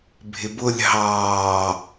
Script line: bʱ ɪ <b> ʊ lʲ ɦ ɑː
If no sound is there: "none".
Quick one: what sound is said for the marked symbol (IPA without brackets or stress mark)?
b